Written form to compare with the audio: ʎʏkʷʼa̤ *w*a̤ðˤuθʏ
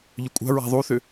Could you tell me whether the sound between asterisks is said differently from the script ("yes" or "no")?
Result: yes